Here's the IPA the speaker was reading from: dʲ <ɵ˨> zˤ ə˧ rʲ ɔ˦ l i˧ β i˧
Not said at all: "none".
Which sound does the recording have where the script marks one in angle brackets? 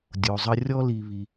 o˨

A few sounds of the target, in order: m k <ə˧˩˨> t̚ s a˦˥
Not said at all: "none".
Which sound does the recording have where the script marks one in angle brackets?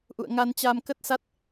ə˦˥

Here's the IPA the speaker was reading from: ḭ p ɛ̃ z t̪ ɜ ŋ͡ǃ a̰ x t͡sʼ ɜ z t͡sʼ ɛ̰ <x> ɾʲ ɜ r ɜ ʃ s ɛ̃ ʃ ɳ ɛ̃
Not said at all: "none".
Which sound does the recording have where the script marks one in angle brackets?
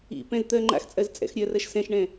x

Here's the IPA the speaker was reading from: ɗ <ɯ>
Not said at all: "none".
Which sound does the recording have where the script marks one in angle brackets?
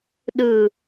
ɯ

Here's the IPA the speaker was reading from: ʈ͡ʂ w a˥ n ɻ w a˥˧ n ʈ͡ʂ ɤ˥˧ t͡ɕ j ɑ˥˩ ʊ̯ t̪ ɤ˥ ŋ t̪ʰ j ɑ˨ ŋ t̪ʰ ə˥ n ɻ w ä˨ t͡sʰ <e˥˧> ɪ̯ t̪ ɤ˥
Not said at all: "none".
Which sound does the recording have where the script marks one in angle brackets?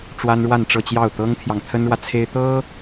e˥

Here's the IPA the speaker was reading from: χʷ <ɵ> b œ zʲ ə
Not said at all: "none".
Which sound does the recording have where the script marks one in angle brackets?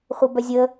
ə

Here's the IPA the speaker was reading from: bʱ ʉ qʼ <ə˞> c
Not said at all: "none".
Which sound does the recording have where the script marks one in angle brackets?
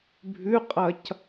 ɐ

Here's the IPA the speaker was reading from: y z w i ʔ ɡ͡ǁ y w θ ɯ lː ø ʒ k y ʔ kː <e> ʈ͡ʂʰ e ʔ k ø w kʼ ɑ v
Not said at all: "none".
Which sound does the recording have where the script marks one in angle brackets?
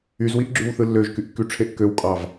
y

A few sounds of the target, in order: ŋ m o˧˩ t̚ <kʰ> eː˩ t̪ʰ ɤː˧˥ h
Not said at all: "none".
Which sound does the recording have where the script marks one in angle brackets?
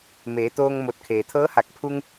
kʰ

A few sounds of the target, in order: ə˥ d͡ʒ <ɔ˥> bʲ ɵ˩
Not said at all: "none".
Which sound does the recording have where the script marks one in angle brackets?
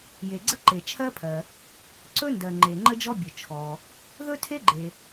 ɔ˥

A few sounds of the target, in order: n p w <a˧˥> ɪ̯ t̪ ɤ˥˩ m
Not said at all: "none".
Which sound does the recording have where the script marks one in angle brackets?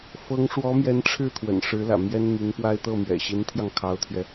a˥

